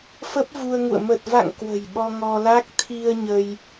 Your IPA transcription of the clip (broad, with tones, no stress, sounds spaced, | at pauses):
f ə˦˥ p̚ v u˧ ə̯ ŋ ṵ˧˨ ə̯ m ə˨˩ t̚ v a̰˧˨ ŋ k w ə̤˨˩ j ɓ ɔ˧ ŋ ɔ˧ l a˦˥ k̚ t̪ʰ i˧ ə̯ ɲ ə˧ j